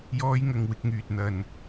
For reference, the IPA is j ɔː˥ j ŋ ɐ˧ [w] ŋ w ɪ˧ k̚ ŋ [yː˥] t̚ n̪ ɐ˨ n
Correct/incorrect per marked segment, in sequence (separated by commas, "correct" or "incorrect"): incorrect, incorrect